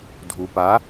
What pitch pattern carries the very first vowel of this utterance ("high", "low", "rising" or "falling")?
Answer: low